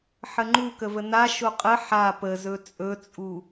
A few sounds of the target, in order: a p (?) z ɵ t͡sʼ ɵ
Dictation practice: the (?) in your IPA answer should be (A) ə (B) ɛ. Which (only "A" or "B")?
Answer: A